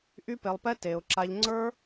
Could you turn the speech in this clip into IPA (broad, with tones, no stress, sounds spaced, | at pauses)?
ʔ y˦ p e˧ lˠ p ɛ˦ t e˧ ʊ̯ ǁ a˧ ʎ ŋ͡ǀ ə˞˦